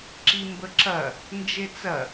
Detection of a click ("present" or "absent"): present